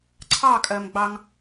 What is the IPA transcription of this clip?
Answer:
ǀʰɑkʼɜmɡ͡bɑŋ

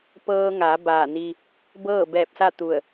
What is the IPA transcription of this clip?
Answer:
pɤː˧ŋa˩˧ baː˧˩ni˧ | bɤː˥˨bɛː˧˩p̚sa˥˨ t̪u˧˩ə̯

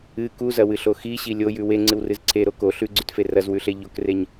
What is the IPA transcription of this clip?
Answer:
ɨ kuzɐwɨɬo xiɕi lʲojʉ weŋ͡ǀɨwrɨz ǀʰeɾo ko ɬʉɡ͡ǀʉtfe rɐzwʉɬe ʎokreɲ

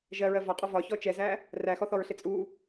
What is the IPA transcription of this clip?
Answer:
ʒɜɹɜ vɒqʼɔ vɒçɔ t͡ʃɛzæ | ræxɔθɔɹɬɪ t͡sʼu

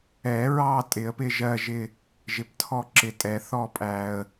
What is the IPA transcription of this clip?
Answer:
ɛ˨˩˦ɹɑ˦˨ tʼɪ˨˩˦ə̯pɪ˦˨ʒɜ˦˨ʒɪ˦˨ | ʒɪ˨ptʰɔ˦˨ǁɪ˨tʼɛ˨˩˦ θɔ˦˨pʼæ˨ə̯

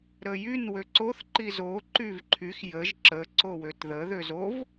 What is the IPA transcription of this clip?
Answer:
ɾəjyn wøǀoθ ǃizo ǃyvǃʰyx jəʒ ǁə ǀowøtðə ðøzov

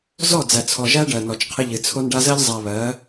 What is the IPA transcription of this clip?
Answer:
zɔ˦˨d͡zæ˨t͡sʰɔ˨ʒæ˦ ɖɜ˨nɔ˨t͡ʃqʰɪ˦ ʎɨ˨t͡sʰo˦nɖa˦ zɜ˦ʎzˤæ˨ βɜ˨˦

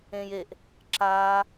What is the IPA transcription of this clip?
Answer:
ẽːjeʔ | ǁaː

